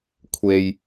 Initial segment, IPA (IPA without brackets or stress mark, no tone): kʷʰ